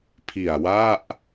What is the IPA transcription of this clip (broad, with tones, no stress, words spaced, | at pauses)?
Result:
pʰi˨˩a̯wa˥˩ʔ